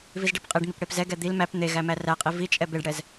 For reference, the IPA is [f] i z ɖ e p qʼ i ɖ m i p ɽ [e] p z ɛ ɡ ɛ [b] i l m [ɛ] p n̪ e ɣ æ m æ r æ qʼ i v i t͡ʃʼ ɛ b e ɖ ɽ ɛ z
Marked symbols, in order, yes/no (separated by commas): no, yes, no, no